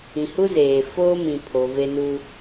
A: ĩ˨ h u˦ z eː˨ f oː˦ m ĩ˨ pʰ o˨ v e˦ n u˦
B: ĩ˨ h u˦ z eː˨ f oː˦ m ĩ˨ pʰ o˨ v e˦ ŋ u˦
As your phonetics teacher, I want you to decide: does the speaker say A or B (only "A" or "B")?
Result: A